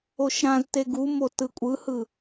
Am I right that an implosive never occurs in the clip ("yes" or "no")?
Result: yes